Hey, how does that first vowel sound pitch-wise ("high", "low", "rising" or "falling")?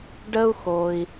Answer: high